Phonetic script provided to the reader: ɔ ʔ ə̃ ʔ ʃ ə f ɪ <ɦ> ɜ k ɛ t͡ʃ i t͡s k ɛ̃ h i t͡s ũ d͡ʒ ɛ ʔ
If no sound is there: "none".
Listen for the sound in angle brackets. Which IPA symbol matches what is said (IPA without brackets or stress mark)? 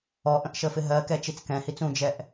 ɦ